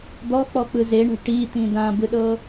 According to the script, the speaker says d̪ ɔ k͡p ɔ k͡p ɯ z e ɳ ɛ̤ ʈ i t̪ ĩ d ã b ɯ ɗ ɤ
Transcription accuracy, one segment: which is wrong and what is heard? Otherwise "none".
none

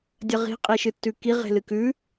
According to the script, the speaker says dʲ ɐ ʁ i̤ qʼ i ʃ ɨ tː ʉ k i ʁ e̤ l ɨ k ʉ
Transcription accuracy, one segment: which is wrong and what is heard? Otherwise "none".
none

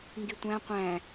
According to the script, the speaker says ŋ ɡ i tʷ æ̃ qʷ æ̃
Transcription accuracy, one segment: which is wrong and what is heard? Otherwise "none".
none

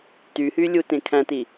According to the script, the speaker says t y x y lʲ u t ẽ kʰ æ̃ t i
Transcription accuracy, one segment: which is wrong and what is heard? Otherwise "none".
x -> h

